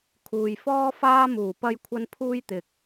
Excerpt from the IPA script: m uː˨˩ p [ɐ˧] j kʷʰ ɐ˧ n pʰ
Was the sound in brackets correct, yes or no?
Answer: yes